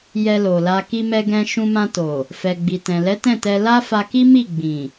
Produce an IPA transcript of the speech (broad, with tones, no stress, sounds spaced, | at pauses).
j ɛ˧ l o˨ l a˧ k i˧ m ɛ˧ ɡ ɛ̃˧ ʃ ũ˧ m ã˧ t o˨ | f ɛ˨ ɡ͡b i˨ t ɛ̃˨ l ɛ˨˦ t ɛ̃˦˨ t ɛ˧ l a˦ f a˧ k i˦ m i˦˨ ɡ͡b ĩ˨